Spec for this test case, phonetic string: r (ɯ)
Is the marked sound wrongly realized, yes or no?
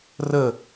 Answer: yes